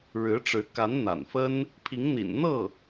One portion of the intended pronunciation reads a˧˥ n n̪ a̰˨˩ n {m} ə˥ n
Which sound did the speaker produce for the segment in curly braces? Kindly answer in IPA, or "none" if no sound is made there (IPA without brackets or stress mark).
f